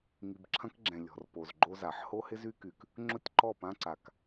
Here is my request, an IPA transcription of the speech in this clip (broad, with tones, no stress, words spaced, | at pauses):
ŋi˨bǁʰɐ̃˦kɡ͡ǁɛ̃˨ lʲɔ̤˨rpo˨zɡ͡ǃo˦za˨ħ ho˦hɪ˦zy˦ky˨k | ŋ͡ǁʊ˦tʲǃɔ˦˨pã˦ǀa˨k